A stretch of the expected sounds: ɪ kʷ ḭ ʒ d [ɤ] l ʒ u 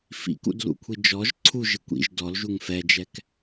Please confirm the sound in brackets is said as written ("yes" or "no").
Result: no